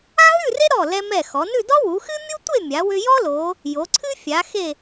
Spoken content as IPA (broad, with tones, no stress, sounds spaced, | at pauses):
a˥ ɦ ʉ˥˧ r e˥ ɾ ɔ˧˩ l ɛ˧ m ɛ˧˩ x ɔ˩˧ n ʉ˥˧ d ɔ˥ w u˩˧ x ɨ˥ mʲ u˥ tʷ e˥˧ mʲ a˩˧ w ʏ˧ j ɔ˥ l o˩˧ | j o˩˧ ǀʰ ɨ˥ fʲ a˩˧ x e˧˩